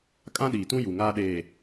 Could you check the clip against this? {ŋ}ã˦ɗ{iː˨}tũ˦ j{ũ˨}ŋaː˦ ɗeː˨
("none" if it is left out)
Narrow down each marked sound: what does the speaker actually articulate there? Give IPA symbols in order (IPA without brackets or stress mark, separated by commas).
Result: kʼ, iː˨, u˨